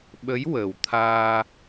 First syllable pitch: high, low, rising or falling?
rising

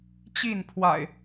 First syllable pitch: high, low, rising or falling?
falling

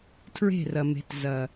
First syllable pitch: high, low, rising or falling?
falling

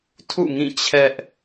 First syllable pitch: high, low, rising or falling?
falling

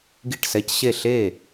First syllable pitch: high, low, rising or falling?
falling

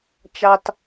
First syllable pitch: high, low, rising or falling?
high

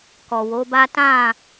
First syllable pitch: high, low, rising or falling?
low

